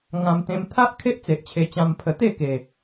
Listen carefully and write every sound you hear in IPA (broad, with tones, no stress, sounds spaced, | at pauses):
ŋ ã˧ m t̪ ẽ˧ m t̪ʰ a˦ ʔ kʰ e˦ ʔ t͡s e˨ ʔ t͡ɕʰ e˧ t͡ɕ ã˧ m pʰ ə˧ t̪ e˥˧ k e˨˩